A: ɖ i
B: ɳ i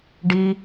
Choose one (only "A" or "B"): A